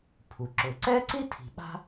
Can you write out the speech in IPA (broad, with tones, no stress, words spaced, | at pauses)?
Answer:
pʰu˩ ǁʊː˩ǀɛː˥ǀi˥ tʰi̤˩ ɓa̤˥